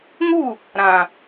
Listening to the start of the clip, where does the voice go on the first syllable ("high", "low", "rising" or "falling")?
falling